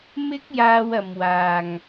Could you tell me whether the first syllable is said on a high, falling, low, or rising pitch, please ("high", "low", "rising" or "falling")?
high